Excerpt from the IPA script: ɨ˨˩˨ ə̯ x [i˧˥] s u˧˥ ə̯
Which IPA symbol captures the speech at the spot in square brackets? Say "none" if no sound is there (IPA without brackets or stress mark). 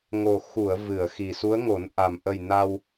i˨˩